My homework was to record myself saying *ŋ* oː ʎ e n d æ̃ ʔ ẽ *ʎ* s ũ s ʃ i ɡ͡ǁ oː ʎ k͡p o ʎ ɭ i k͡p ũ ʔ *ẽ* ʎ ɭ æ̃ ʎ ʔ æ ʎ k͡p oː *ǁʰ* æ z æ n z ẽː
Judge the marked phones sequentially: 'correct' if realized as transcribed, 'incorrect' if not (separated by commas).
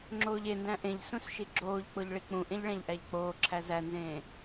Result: incorrect, correct, correct, correct